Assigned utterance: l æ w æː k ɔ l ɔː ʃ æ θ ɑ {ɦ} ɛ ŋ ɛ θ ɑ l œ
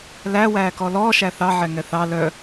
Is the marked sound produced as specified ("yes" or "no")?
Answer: no